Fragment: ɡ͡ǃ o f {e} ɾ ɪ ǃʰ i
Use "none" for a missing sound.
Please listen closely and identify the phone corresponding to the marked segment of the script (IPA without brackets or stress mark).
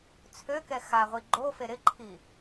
e